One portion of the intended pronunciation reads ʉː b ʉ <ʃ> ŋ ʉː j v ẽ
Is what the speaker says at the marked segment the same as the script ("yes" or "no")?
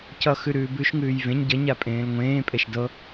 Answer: yes